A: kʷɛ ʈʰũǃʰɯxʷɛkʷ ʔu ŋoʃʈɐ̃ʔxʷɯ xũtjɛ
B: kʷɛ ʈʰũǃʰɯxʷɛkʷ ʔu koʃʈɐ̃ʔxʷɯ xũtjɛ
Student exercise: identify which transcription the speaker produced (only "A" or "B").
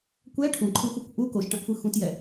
B